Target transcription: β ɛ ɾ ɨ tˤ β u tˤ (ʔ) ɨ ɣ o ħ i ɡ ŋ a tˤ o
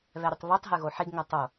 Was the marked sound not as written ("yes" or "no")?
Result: yes